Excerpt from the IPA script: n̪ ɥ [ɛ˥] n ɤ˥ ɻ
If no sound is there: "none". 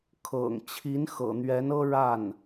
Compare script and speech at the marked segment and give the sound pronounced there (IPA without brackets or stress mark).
ɛ˧˥